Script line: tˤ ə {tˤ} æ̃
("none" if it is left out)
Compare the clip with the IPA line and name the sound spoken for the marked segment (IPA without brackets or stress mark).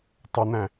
n̪